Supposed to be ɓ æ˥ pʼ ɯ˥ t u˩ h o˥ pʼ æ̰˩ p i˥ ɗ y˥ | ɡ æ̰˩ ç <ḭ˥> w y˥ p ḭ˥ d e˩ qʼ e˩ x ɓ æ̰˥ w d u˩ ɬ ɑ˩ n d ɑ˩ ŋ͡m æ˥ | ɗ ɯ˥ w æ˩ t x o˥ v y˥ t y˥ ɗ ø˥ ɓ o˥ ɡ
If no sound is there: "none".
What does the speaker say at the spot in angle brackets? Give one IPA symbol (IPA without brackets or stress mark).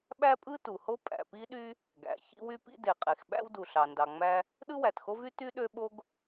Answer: ḭ˥